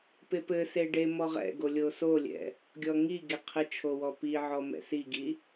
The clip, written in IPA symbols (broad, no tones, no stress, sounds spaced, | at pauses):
p e p ɘ s e ɖ e m ɔ ʁ ɛ̰ ɡ o lʲ o s o lʲ ɛ̰ | ɡʲ ɔ ŋ i ɡ e qʰ ɘ t͡ʃʰ o w ɔ p i ʕ ɔ m ɛ̰ s i ɡ i